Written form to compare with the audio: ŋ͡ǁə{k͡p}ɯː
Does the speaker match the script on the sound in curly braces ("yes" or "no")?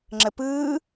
no